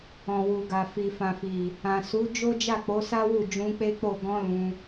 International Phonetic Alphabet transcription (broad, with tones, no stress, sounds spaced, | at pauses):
ɔ̃˨ w u˨ ɡ a˨ f i˨ f ã˨ f i˨ | ã˨ s u˨˦ d͡ʒ o˦ d͡ʒ a˦˨ k͡p o˨˦ s a˦ w u˦˨ d͡ʒ ũ˧ k͡p e˦ k͡p o˦˨ ɡ ɔ̃˧ l ũ˧